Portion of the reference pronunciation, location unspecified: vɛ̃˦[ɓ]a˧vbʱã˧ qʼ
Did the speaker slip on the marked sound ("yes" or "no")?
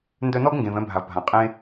yes